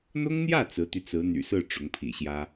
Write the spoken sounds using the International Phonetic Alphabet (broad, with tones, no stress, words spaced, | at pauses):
n̪ʊ˥ŋn̪jä˥˩ t͡sɹ̩˧˥t̪y˧t͡sɹ̩˧˥ n̪y̰˨˩sɹ̩˥˩ ʈ͡ʂʊ˧˥ŋpʰḭ˨˩ɕjä˥